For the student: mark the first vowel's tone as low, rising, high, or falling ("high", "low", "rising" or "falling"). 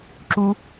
high